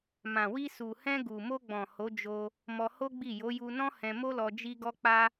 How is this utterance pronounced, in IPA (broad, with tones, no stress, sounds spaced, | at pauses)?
m ã˨ w i˧ s u˨ h ɛ̃˧ ɡ u˨ m o˧ ɡ͡b ɔ̃˨ h o˨˦ d͡ʒ o˧ | m ɔ˧ h o˦ ɡ͡b i˦˨ j o˨˦ j u˧ n ɔ̃˦ h ɛ̃˧ m o˦ l ɔ˧ d͡ʒ i˧ ɡ ɔ˧ k͡p a˦